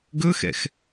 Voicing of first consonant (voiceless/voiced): voiced